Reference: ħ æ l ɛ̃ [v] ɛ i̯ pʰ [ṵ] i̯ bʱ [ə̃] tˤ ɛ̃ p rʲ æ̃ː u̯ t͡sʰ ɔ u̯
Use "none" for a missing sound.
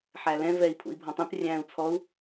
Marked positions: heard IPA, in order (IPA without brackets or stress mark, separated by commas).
v, ṵ, ɔ̃